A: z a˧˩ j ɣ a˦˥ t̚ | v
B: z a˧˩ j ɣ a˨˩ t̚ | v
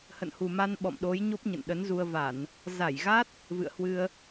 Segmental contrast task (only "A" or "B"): A